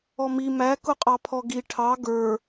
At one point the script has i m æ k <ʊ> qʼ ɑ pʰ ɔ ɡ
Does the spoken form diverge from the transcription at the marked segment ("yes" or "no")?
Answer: no